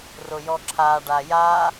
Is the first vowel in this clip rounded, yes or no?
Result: yes